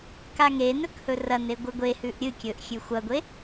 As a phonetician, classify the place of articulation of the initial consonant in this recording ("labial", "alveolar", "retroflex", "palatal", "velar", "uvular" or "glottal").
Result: velar